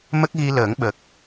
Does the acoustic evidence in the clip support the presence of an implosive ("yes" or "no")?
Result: yes